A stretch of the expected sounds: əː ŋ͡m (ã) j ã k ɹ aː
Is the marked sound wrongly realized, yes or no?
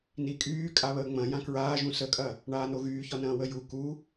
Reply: yes